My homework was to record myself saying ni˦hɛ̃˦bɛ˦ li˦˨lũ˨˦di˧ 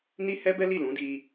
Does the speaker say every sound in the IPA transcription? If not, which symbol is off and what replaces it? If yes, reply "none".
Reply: ɛ̃˦ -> ɛ˦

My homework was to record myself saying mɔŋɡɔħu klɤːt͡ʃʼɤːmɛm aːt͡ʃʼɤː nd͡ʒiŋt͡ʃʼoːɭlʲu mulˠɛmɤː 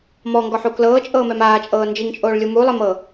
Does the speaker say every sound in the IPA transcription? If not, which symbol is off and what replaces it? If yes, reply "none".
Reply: none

